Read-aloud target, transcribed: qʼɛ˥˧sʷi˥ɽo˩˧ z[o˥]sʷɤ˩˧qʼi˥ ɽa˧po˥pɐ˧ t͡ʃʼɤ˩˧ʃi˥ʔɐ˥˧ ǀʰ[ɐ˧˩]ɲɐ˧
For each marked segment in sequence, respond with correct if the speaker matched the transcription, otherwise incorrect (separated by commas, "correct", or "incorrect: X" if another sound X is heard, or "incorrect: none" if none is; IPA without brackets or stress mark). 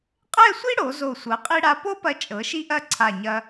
incorrect: o˧˩, incorrect: a˧˩